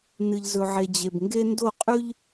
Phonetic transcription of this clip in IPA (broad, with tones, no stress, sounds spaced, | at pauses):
n ɨ˨ ʎ z ɵ˨ ʕ e˨ d͡ʑ e˨ b ŋ ɡ e˦ n d o˦˨ qʼ ʉ˦ ʎ